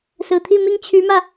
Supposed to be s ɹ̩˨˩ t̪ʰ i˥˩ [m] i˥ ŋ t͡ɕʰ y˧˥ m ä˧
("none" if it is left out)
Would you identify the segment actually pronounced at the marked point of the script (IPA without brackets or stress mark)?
m